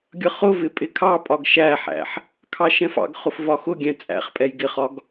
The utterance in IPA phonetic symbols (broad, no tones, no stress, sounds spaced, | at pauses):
ɡʲ ʌ χ ʊ v ɪ pʼ ɪ kʰ ɑ pʼ ɒ ɡ ʃ æ ħ æ̰ ħ | kʰ ɑ ʃ ɛ̃ f ɑ̰ ɡ χ ʊ f v ɒ x ʊ ɡʲ ɛ̃ t͡sʼ æ̰ χ pʼ ɛ j ɡ ɪ χ ɒ ɡ